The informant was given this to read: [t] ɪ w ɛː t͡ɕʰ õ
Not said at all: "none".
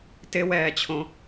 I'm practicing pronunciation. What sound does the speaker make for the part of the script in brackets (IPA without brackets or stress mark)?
t